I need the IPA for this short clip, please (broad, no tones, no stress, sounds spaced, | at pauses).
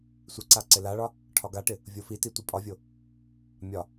sʷ ɪ ǀ a ǀ ɪ l a ɭ ɒ | ʈʰ ɒ ɡ a ʈ ɪ | vʲ o f i t i tʷ i pʼ ɒ vʲ o | mʲ ɒ